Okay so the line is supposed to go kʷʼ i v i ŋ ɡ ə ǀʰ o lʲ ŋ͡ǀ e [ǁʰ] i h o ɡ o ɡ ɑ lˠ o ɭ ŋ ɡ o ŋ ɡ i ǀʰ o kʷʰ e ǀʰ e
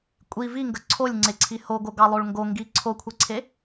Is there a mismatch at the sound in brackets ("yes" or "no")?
yes